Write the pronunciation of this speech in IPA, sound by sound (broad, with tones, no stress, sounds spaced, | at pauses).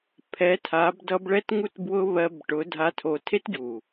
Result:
pʰ ɛ˨˦ tʰ a˨˦ b d ʌ˧ b ɭ ɛ˦ t ŋ u˦ t b w ʊ˦ β ɜ˧ b ʈ ʊ˨˦ dʱ a˧ tʰ o˧ tʰ e˦ t ɟ u˨